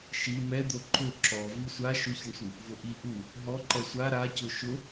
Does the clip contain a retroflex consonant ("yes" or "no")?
yes